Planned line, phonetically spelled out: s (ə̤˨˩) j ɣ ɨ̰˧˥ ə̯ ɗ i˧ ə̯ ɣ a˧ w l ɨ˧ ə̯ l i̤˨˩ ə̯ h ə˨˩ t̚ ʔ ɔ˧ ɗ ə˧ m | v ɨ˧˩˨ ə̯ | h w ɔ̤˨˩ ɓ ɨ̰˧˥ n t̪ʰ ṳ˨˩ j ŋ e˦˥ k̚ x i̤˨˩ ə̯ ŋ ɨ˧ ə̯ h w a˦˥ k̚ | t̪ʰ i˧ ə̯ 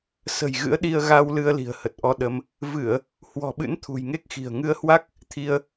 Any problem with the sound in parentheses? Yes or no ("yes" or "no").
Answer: no